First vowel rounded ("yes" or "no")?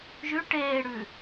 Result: yes